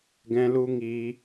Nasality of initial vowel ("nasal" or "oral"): nasal